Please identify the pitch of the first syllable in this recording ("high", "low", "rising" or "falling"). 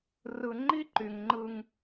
low